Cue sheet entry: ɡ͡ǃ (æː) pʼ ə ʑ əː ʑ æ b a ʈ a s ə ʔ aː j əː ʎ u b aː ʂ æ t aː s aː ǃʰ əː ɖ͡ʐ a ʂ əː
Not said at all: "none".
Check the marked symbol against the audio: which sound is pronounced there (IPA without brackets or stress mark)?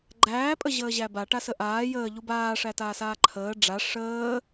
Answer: æː